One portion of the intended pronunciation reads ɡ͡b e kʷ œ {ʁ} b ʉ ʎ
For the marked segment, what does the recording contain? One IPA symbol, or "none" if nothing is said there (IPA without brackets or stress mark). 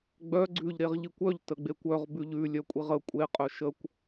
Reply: ʁ